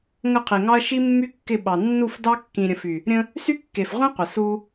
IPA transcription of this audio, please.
ŋ ə˦˨ qʰ i˨ ŋ ɑ˦ ɐ̯ ʃ i˦ mː y˦ kː ɪ˦˨ ɓ ɑ˨ nː u˦˨ f d ɑ˦ kː ĩ˨ ɾʲ ə̃˨ f y˨ | ɾʲ ə̃˦ | s y˦ kː e˨ f ʁʷ ĩ˦ qʷ ə˨ s u˦

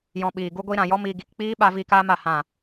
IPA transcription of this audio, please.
j ɔ̃˧ ɓ iː˨ ɡ u˦ ɡʷ i˦ ɾ ã˨ j ɔ˦ m iː˧ ɡ i˨ k k͡p iː˦ ɓ a˧ v i˧ k aː˦ m a˨ h ã˦˨

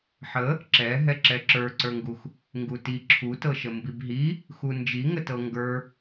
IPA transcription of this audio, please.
ħ ə | ǁ ɛ ɦ ɛ ǁ ɛ ǁ ə˞ ǀ ə˞ ŋ ɡ u x | ŋ ɡ u t i ǁʰ u t ɤ ʃ ə m b i b ɦ i | x u n d͡ʒ i ŋ ə t ɤ ŋ ɡ ə˞

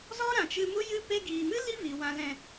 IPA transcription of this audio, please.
z ɔ˦ ɾ ã˨ t͡ʃ ɨ˧ m u˦ j ɨ˦ p e˧ ɡ iː˨ m ɨ˦ l i˦ v i˨ w ã˨ l ɛ̃˨

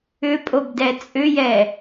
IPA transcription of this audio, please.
ʏ pʼ o b d ɛ t͡sʼ ʏ j ɛ

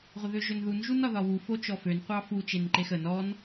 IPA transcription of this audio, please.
ʁʷ ə ð ø ʒ ø n ð u n ʒ u n ɒ ð ɒ w u f o t͡ʃ ɔ f ø n qʷ ɑ f u t͡ʃ e n ǃ e x ə n ɔ n

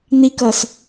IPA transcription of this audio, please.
n̪ i k ʌ s

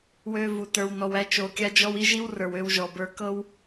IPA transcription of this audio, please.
w ø˦ v u˧ t ə˞˧ w n ɔ˧ w æ˦ t͡ʃ o˧ kʲ a˦ d͡ʒ ɔ˦ w i˦ ʒ i˦ w r ə˞˨ w ø˧ w ʒ ɔ˨ b ə˞˧ k ɤ˦ w

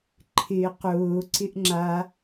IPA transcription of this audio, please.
ǃʰ ɪ q ʊː ǀ ɪ ʔ ŋ͡ǁ a

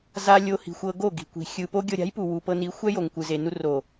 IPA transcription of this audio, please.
z a˧ lʲ o˧ h i̤˨ xʷ ɤ˧ ɡ o˦˨ ɡ i̤˨ kʷ i̤˨ xʲ ɯ˨ p o˦ ɡʲ ɤ˧ ɾʲ a̤˨˦ j p u˨ w u˨ p ɤ˧ n i˨˦ xʷ ɛ˦ j o˨ ŋ kʷ ɯ˨ z e˨ n u˧ r o˨

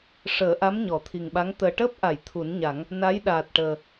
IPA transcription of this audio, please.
ʂ əː˨˩˦ ʔ a˧˥ m ɲ ɔ˨˩˦ t̪ʰ i˨˩ ŋ ɓ a˧˥ ŋ t̪ əː˨˩ ʈ əː˦˥ p̚ ʔ a˨˩˨ j t̪ʰ u˨˩˦ n ɲ a˨˩˦ ŋ | n a˧˥ j ɗ aː˨˩ t̚ ʈ əː˨˩

